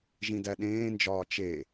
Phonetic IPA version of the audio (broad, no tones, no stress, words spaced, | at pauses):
ʒĩdæɗẽːnd͡ʒɒː t͡ʃe